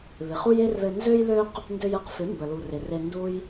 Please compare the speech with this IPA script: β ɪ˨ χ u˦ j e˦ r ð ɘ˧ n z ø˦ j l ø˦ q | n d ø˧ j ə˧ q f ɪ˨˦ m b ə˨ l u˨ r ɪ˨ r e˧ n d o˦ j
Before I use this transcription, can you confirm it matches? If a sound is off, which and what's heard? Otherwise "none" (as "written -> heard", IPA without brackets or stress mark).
o˦ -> u˦